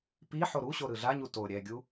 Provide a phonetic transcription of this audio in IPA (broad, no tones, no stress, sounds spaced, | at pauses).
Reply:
p i ħ o ɾ u ɕ o ɾ ɯ ɮ a ɲ u t o ɾʲ ɛ ɡʲ u